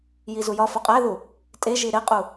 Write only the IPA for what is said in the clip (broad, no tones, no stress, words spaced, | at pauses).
jizujɒ foqʼæðu | tʼeʒi ɾeqʼu